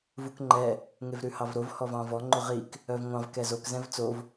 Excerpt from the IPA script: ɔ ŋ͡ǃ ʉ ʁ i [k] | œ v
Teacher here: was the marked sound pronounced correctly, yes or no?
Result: yes